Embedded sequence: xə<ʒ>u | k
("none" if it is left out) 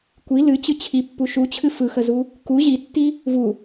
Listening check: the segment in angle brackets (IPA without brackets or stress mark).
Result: z